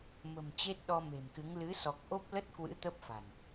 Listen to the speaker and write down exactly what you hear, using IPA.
m ə̤˨˩ m t͡ɕ e˦˥ t̚ ɗ ɔ˧ m e̤˨˩ m k ɨ˨˦ ŋ l ɨ˨˦ s ɔ˨˩ k̚ ʔ o˦˥ p̚ l ə˦˥ t̚ k w ɨ̰˧˥ t̪ ə˦˥ p̚ f a̤˨˩ n

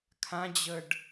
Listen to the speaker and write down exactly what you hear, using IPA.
kʰ ã d͡ʑ ə ɖ

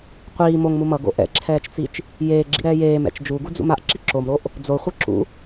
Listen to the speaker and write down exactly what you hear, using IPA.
qʷ iː m o ŋ m u m ʌ ɡ o̰ ʔ ɛ̰ ǁʰ ɛː t͡ʃ t͡s i t͡ʃ | j eː ɡ͡ǁ ḭ ɾ ɛː j eː m ɛ̰ t͡ʃ d͡ʒ u ɡ u d͡z ṵ m a ʔ ǁ i ǁ o m ɾ o ʔ | d͡z o χʷ ɯ ǁ ṵ

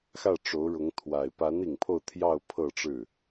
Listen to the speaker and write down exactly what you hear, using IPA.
x ä˥˩ ʈ͡ʂ o˧˥ ʊ̯ ɻ ʊ˧˥ ŋ t̪ʰ w a˨˩ ɪ̯ p a˧˥ n i˨˩ ŋ pʰ o˥˧ ʊ̯ t̪ʰ j ɑ˥˧ ʊ̯ pʰ ɤ˥˧ ʈ͡ʂ ɻ̩˥˩

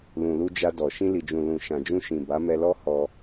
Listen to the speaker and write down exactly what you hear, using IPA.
l ũ˨ l u˧ d͡ʒ a˧ d ɔ˨ ʃ ĩ˧ l i˨ d͡ʒ ũ˨ l ũ˨ ʃ ã˨ d͡ʒ ũ˧ ʃ ĩ˨ b a˨˦ m ɛ˧ l ɔ˦ h ɔ˧

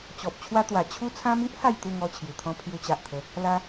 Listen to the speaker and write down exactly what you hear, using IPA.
t͡ɕ ɔ˨ p̚ t͡ɕʰ w a˦ t̪ w a˨˩ t͡ɕʰ u˧ t͡sʰ ã˧ m i˦ ʔ h a˥˧ j t̪ u˥˧ ŋ ɔ˥˧ t͡ɕʰ j u˨˩ t̪ʰ ɔ̃˦ pʰ j u˧ t͡ɕ a˨ ʔ t̪ʰ ə˨˦ | l a˦

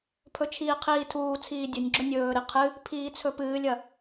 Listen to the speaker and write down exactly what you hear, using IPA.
pʰ ɵ t͡ʃʰ iː qʰ iː tʰ uː t͡sʰ iː dʲ ɵ nʲ ɡ͡ǁ ɵ nʲ ɵː ɾ i qʰ ɨ | pʰ iː t͡sʰ ɵ p ɨː lʲ ɐ

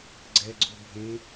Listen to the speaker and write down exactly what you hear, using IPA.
ɡ͡ǀ ɛ ɡ͡ǀ u bʱ ẽ

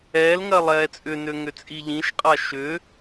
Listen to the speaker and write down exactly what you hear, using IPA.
ɛː l ŋ ɜ lˠ ɛː t͡sʼ ʏ n ø ŋ ʏ t͡sʼ i ʎ ĩ ʃ qʼ a ʃ ʏ

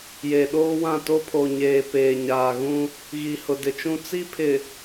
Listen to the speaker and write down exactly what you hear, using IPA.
j e˨ ɗ oː˦ w ã˦˨ t o˦ pʰ o˨ ɲ eː˨ p eː˨ ɲ aː˨ ɣ ũ˦ | ɣ i˨ h ʊ˨ d ɪ˨ t͡ʃ ũ˦ t͡s i˦ pʰ ɪ˨

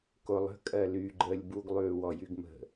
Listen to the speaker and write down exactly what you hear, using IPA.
k o lˠ ə̤ kʼ ɜ l y ɡ͡ǃ əː lʲ b u ɡ lˠ ʉː w ɔ j y ɡ m ə̤

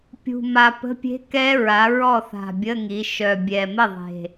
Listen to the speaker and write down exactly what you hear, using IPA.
pʲ ṳ˨˩ m a˨˩ p ə̤˧˥˧ pʲ e̤˦˥ k ɛ˦˥ ɹ a˩˧ ɹ ɔ˥˩ θ a̤˨˩ bʲ ə˧˥˧ ŋ i˩˧ ʃ œ˨˩ bʲ ɛ˨˩ m ə˥˩ ðˤ e̤˨˩

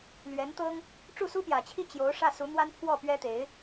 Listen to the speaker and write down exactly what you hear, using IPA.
l ɥ ɛ˧˥ n t̪ ɤ˥ ŋ | ʈ͡ʂ u˥˩ s u˥ p j ä˨˩ t͡ɕʰ i˥˩ t͡ɕ j o˧˥ ʊ̯ ʂ ä˥˩ s u˧˥ n̪ w a˥ n pʰ w ɔ˥˩ p ɥ ɛ˥ t̪ e˧˥ ɪ̯

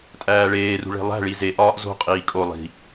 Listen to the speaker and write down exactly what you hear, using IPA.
tʼ æː ɭ eː r ṳ ɭ e̤ lˠ æ̤ ɭ i z e ʔ ɒː ʔ z o̤ qʼ iː kʼ o lˠ i̤

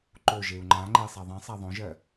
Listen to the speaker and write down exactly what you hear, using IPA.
ǃ o ʒ e u̯ ŋ͡ǃ ã ŋ͡ǃ e sˤ a ðˤ ẽ sˤ a ðˤ õ ʒ ɜ

